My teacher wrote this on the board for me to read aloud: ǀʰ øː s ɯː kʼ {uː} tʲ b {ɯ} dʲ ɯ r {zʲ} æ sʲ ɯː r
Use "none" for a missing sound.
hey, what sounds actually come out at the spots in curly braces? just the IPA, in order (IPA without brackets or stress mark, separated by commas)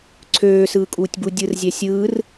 uː, u, zʲ